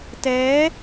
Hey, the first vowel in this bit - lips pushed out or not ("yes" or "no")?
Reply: no